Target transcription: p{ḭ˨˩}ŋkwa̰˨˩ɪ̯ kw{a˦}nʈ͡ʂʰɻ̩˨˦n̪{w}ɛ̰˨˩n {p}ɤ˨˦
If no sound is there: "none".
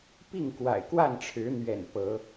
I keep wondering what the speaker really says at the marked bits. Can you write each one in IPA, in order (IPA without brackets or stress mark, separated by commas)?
i˥˨, a˥˨, ɥ, p